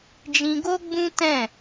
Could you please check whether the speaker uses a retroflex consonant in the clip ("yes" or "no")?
no